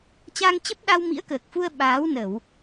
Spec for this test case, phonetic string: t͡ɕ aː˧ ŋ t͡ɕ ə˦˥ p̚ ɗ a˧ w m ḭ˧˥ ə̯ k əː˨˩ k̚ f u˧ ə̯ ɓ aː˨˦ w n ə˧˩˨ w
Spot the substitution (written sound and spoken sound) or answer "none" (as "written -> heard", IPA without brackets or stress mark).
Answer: none